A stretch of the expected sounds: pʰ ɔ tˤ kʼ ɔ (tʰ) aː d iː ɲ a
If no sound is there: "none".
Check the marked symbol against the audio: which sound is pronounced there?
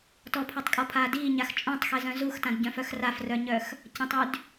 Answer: pʰ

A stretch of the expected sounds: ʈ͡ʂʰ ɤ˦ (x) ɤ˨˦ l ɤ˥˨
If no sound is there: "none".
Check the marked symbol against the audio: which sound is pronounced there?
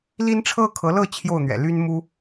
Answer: kʰ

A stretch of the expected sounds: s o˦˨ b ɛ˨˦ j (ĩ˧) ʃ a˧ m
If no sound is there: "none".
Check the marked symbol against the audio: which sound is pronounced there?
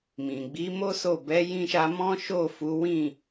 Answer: ĩ˧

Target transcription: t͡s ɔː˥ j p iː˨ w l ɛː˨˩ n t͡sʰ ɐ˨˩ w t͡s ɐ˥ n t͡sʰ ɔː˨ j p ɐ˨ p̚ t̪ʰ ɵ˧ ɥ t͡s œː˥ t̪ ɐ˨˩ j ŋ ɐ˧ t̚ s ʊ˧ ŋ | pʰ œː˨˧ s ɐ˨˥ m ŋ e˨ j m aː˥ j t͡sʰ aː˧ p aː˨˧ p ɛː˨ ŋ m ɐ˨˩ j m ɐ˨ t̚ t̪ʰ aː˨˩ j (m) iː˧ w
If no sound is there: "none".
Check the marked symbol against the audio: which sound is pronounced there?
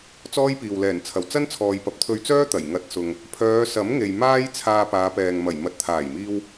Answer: m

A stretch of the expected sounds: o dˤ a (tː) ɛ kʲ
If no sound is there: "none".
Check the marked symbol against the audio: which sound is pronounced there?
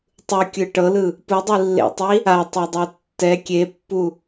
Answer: tː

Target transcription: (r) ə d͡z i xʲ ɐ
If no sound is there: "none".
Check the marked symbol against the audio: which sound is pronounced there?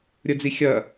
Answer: ɾʲ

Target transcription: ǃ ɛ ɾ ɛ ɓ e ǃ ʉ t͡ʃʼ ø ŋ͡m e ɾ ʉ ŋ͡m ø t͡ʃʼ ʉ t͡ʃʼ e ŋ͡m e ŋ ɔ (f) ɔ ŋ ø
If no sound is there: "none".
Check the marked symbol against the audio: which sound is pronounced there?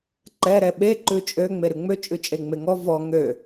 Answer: v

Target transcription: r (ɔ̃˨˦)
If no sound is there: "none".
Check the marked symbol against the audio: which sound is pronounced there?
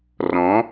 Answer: ɔ̃˨˦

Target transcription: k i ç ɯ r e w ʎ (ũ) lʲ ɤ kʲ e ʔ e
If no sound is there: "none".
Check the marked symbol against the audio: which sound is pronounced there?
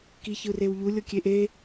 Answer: u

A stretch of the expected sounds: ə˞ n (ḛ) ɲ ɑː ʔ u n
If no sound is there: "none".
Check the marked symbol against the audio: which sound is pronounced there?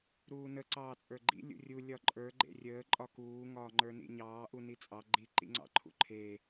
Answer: ḭ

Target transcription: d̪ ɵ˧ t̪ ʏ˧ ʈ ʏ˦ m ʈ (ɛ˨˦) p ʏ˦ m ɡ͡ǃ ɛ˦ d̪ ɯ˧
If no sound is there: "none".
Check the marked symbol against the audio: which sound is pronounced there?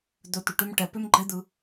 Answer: ɛ˧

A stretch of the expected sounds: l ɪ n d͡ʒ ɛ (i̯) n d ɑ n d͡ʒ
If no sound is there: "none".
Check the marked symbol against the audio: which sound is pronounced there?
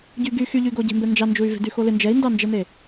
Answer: i̯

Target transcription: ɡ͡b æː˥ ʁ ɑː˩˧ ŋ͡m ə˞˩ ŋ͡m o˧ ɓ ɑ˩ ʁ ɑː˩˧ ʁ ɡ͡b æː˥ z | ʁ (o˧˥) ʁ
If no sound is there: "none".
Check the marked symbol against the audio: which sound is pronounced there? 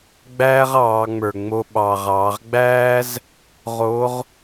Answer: o˧˥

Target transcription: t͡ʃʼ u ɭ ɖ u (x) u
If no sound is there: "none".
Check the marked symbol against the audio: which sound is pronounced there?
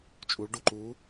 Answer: ǃ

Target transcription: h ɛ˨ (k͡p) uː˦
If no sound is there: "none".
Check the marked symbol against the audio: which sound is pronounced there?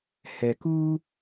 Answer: k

